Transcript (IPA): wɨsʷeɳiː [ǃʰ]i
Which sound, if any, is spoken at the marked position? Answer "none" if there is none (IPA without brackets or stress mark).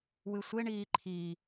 ǃʰ